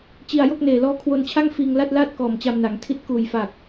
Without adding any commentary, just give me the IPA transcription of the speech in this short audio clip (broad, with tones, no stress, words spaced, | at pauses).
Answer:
t͡ɕi˧a̯jo˥˩k̚ neː˨˩lɔː˦˥kʰwo˧nt͡ɕʰa˥˩ŋ fiː˧ŋla˥˩t̚laː˥˩t̚ kɔː˨˩mt͡ɕa˧mna˩˦ŋtʰi˥˩t̚ kuː˨˩j fa˨˩k̚